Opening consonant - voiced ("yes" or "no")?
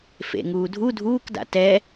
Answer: no